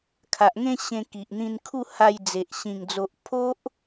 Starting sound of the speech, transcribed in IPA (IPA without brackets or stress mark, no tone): kʰ